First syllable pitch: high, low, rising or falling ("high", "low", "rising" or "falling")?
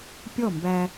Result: falling